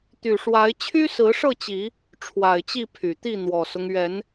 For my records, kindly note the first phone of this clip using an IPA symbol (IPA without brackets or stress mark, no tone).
t̪